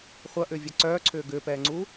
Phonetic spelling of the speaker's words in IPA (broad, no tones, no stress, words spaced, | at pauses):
χʷɐʔʏːvʲɛ ǀœːǀʰʏː ɡʏːpɛːŋ͡ǀuː